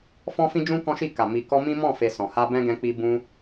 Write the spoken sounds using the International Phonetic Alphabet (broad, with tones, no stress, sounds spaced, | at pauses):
f ɔ̃˦ f ĩ˦ d͡ʒ ũ˦ k ɔ̃˦ ʃ i˦˨ k a˨ m i˨ k ɔ˧ m ĩ˦ m ɔ̃˦˨ f e˧ s ɔ̃˨ h a˧ b ɛ̃˦ ɡ ɛ̃˧ k͡p i˧ b ũ˧